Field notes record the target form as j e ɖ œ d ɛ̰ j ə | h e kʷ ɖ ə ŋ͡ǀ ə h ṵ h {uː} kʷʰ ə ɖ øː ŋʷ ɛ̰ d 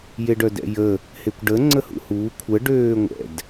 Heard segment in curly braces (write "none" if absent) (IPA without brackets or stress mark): uː